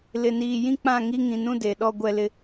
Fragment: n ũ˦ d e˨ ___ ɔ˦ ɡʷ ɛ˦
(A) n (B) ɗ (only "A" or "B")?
B